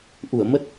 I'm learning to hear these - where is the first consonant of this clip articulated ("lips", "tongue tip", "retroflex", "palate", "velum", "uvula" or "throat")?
throat